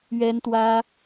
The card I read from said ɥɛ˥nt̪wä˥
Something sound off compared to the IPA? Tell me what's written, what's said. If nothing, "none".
none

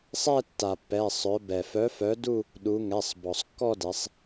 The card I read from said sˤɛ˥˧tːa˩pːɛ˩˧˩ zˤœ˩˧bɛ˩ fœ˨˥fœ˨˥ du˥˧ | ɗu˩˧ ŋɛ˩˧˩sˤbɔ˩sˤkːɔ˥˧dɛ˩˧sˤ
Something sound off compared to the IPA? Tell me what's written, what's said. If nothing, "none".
zˤ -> sˤ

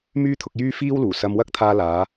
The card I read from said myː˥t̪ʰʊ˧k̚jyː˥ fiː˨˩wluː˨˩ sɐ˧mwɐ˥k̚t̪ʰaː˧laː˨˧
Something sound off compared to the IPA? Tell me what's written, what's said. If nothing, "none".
iː˨˩ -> iː˥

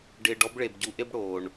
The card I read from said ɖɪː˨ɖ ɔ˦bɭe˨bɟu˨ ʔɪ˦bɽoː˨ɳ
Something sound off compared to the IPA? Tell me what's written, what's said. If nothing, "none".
none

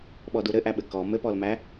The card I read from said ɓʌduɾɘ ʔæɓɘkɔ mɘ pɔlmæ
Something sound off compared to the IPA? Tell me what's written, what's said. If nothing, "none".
ʌ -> ɔ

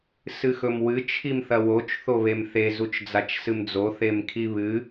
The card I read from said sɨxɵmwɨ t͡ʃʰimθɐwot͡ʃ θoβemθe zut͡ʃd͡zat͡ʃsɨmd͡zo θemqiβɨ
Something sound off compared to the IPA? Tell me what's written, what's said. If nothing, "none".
q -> kʰ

